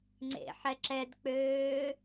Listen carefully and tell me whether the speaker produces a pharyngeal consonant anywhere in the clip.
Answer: yes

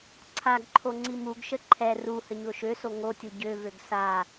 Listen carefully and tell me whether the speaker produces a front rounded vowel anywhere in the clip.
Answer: yes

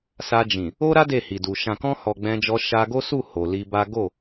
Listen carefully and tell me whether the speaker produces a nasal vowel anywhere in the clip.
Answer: yes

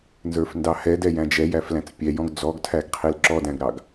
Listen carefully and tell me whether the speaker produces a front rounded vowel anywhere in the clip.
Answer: no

